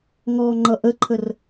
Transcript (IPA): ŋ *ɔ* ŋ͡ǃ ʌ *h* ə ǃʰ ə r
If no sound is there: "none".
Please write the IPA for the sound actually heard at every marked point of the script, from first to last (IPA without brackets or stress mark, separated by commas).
ɔ, ʔ